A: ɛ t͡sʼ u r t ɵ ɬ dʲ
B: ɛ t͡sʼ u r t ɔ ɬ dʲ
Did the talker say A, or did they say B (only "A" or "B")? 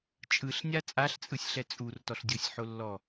B